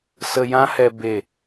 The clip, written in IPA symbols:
s ə˧ j ã˦ h ɛ˧ b e˦˨

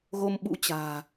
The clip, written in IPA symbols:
ɣ o˧ m ɓ ṵ˧˥ t͡ɕ a̤ː˨˩

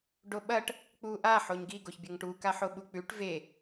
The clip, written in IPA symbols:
ɖ o ɓ ɐ ʈ | k͡p u ʔ a ħ o ɲ ɡ i ɡ o ç bʲ ɐ ŋ ʈ u k a ħ o ɓ u k͡p ʉ ʈ v e

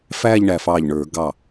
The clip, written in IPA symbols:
f æː˥˧ ʎ ɳ æ˧˩ f ɑː˧˩ ʎ ɳ ə˞˨˩˦ ɡ ɑ˥˩

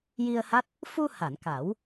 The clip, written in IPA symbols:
j i˧ ə̯ h a˦˥ t̚ | f u˧ h a˨˩˨ n k a˨˩˦ w

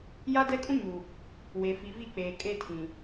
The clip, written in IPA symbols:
j a˦ d ɛ˦ kʼ ũ˦ ɲ u˨ | w e˨ f i˨ v i˦˨ k͡p eː˨ kʼ e˦˨ tʰ ĩ˨

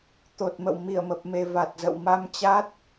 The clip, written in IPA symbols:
t̪ o˨˩ t̚ m ə̰˧˨ w m i˧˩ ə̯ m ə˨˩ p̚ m e˨˩ v a˨˩ t̚ z ə̰˧˨ w m a˧ m t͡ɕ a˦˥ t̚

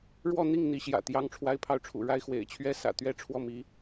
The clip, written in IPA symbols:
ɻ w ɔ˥˧ n̪ i˥˩ ŋ n̪ i˧˥ ɕ j ä̰˨˩ t̪ j ɑ˥ ŋ ʈ͡ʂʰ w a˥ ɪ̯ pʰ ɑ˥˩ ʊ̯ ʈ͡ʂʰ ṵ˨˩ ɻ a˥ ɪ̯ x w ḛ˨˩ ɪ̯ t͡ɕʰ ɥ ɛ˥ s ä̰˨˩ t̪ ɥ ɛ˥˧ ʈ͡ʂʰ w ɔ˥˩ m i˧˥

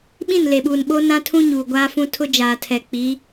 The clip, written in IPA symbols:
ɓ ĩ˦˨ n l e˨ ɓ uː˨ n ɓ o˦ n ã˦ tʰ ũ˦ ɲ uː˨ ɡʷ aː˦ f ũ˦ tʰ ʊ˦ d͡ʒ aː˨ tʰ ɛ˨ k͡p i˨˦

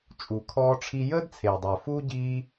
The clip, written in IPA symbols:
t͡ʃʼ u˩ kʰ ɔː˦ ʈ͡ʂʰ i˦ j əː˥ d t͡sʰ eː˩ dˤ ɵː˩ f uː˥ ɟ iː˦

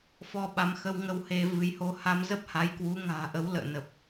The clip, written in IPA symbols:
f ɔ˧ ɓ a˨˦ m x ə˧ w ŋ ə˧ w h e˧ v ɨ˨˦ j h o˧ h a˧ m z ə˦˥ p̚ h a˨˦ j k w u˨˦ ŋ a̤ː˨˩ ʔ ə˨˦ w l ə̰ː˧˨ n ə˨˩ p̚

